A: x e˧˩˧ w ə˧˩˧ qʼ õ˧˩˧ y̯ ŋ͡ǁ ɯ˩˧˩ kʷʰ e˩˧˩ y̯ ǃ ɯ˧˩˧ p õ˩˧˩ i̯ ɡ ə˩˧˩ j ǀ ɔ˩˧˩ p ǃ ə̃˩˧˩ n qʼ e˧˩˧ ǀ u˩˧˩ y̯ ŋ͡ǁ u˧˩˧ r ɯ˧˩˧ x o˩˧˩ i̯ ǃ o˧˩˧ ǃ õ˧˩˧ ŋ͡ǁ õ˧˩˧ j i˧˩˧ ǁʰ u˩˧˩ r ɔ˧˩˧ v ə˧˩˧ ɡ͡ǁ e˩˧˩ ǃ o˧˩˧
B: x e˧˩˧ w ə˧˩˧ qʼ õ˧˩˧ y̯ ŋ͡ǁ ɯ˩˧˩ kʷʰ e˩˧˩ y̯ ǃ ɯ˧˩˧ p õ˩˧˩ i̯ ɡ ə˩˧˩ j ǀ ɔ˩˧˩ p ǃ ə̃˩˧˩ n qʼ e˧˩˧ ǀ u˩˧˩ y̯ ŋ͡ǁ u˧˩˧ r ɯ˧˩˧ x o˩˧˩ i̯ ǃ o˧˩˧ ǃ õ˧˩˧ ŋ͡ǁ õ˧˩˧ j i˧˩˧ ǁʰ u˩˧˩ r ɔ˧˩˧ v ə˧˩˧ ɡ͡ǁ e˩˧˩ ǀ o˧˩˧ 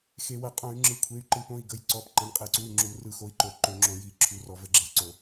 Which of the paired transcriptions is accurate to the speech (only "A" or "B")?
B